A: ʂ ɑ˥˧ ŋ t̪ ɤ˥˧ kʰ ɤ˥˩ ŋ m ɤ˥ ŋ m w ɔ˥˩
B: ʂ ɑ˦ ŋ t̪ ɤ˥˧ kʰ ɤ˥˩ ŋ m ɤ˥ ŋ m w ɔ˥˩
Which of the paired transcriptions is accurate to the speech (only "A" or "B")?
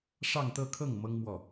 A